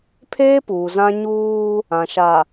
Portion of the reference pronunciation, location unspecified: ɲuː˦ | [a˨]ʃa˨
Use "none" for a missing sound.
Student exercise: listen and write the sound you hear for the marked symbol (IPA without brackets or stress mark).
ã˨